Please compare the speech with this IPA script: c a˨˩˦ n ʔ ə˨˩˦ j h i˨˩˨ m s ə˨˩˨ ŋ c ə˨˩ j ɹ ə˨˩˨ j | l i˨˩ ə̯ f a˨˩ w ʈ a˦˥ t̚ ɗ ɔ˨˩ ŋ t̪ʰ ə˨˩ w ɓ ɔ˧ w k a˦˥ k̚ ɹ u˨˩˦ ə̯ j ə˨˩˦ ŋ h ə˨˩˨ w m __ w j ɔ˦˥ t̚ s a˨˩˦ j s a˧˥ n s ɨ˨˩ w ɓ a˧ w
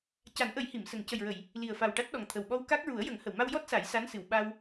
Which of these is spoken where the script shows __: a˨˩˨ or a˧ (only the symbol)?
a˧